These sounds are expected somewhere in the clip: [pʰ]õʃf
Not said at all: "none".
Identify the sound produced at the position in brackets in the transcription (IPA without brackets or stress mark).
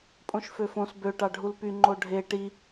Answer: pʼ